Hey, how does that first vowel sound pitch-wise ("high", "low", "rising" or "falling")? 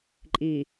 low